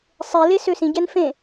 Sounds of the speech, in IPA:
sˤ e l e s ø s ĩ ɟ ɛ n f ẽ

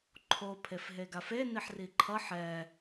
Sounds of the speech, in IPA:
ǃʰ o pʰ e f ɦ e ɡ a f e n i ħ r i ǃʰ ʌ ħ ɛ

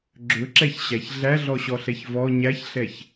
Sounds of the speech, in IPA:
ɡ͡ǁ ɵ ǁ ɛ ç ɕ æ ç ɮ æ ɮ ɔ ɕ ɔ ɬ ɛ ç v ɔ ɲ æ ç ɬ ɛ ç

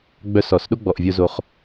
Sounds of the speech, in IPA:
ɡ͡b œ˧ s ɔ˨ s ɗ o˦ ɡ͡b ɔ˨ ʔ vʲ o˧ z o˧ χ

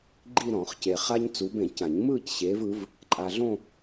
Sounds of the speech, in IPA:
ɡ͡ǃ i˥˧ ɾ ɔ̃˨˩˦ χ c e˨ χ a˥ ɲ t͡s u˨˦ b ẽ˨˩˦ c ã˨˩˦ ɲ m ɯː˥˧ c ɕ eː˨˦ v ɯ˨˦ v | ǃʼ a˨ ɮ õ˥˧

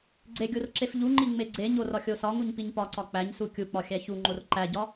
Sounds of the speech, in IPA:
ɡ͡ǀ e ɡʲ o r ǁ e f ʎ u ŋ͡ǃ i ŋ͡m e ɡ͡ǀ e ɲ o r ɒ xʲ o s ɒ ŋ u ɲ p i ɲ p ɒ ǀ ɒ k͡p æ ɲ s u kʲ u k͡p ɒ xʲ æ ç u ŋ͡ǃ o r ǃ æ ɟ ɒ

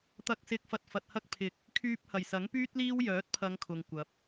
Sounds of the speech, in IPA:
t̪ ɐ˨ k̚ s ɪ˨ k̚ f ɐ˧ t̚ f ɐ˨ t̚ h ɐ˥ k̚ pʰ ɪ˨ k̚ | kʰ yː˧ p̚ h ɐ˨˩ j s ɐ˨˥ ŋ p yː˥ t̚ l iː˥ w j œː˨˥ t̚ pʰ ɐ˨˧ ŋ kʰ ʊ˨ ŋ kʷ ɐ˨˥ p̚

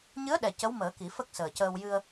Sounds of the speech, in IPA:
ɲ ɨ˧˥ ə̯ ɗ ɛ˨˩ c ə˧˥ w m əː˨˩˦ k i˨˩˦ f ə˦˥ k̚ s əː˨˩ c əː˧ w j ɨ˧ ə̯

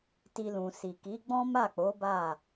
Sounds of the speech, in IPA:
t i˧ l ũ˨ s i˨ k i˨˦ ɡ͡b ɔ̃˦ m a˦˨ k͡p o˨˦ b a˦˨

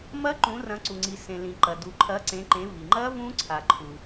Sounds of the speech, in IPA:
m ɐ˦˥ ǃ ũ˩˧ r ɐ̃˩˧ ǀ u˩ ŋ͡ǀ i˩ s ẽ˩ l ĩ˩ ǃ ɐ˩ d u˩ ǃʰ ɐ˩˧ ǀ ẽ˩˧ ǃ ẽ˩˧ v i˩ ŋ͡ǃ ɐ˦˥ v ũ˦˥ ǀʰ a˩ ǃʰ u˩

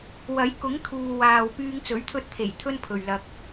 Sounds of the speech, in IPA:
w ɐ˨˥ j k ʊ˨˥ ŋ t̪ʰ uː˨ w aː˨ w p yː˧ ŋ t͡s ɵ˨˥ ɥ t̪ʰ ɵ˧ t̚ t̪ʰ e˨˩ j t̪ʰ ɵ˥ n pʰ ɵ˨ ɥ l ɐ˧ k̚

